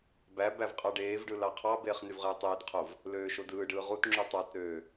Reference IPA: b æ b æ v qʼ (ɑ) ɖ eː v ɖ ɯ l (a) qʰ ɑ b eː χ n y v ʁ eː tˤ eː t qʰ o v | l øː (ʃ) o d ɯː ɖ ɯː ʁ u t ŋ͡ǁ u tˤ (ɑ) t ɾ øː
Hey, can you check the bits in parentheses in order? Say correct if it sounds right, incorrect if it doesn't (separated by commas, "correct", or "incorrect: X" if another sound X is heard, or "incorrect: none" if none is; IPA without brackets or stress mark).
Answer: correct, incorrect: ɑ, correct, correct